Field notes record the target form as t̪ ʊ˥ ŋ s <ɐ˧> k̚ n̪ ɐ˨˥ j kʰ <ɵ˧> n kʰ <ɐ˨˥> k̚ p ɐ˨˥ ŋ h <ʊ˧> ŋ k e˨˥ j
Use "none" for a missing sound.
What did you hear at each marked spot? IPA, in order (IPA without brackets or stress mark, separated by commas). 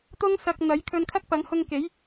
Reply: ɐ˧, ɵ˧, ɐ˥, ʊ˧